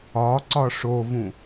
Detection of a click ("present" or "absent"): present